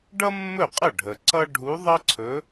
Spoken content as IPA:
ɖʌ˥mːɵ˥˩qʼə˥˩ ɖʱə˨ ǀʌ˥ ɖʱu˧˥ðˤʌ˥ǀʰɵ˧˥

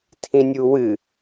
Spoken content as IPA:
tʰĩnʲuwɨ

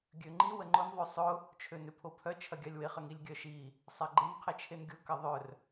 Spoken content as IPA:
ɡʲøŋ͡ǃi wəŋ͡ǃʊn ðˤøsˤʊ | t͡ʃʰønʏpʰopʰœ t͡ʃʰɐɡʲalʲwɪ χəŋilʲɡʲœʃi | sˤaɡ͡ǃɪn qʰɪt͡ʃʰenɡʲʊ kɐðˤœr

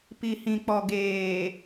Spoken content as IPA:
pi˨hĩ˨k͡pɔ˨ ɡeː˨

